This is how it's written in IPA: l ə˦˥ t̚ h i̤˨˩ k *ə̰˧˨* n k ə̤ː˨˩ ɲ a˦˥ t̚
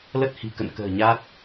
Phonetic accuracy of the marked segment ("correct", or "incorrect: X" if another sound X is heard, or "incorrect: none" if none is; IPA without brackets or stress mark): correct